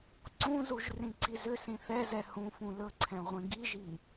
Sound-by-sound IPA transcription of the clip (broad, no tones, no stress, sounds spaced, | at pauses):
ǀ ũ z u ʒ r ĩ ǀ i z ʏ s ĩ θ ɛ z ɛ h ũ f ũ l ɵ ǀʰ ɛ̃ ʁʷ ĩ ɡ i ʒ i